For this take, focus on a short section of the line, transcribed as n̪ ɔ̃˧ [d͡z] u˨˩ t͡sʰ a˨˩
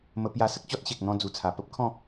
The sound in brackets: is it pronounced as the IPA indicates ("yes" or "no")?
yes